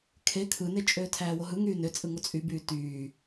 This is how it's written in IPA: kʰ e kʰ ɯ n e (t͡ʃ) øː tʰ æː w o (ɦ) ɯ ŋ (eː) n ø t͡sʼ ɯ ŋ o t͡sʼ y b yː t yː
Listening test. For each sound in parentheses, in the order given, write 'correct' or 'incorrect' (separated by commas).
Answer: incorrect, correct, incorrect